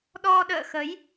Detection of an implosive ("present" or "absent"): present